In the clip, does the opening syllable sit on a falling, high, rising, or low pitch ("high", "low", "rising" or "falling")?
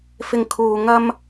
low